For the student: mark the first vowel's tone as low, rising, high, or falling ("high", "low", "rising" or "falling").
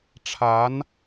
rising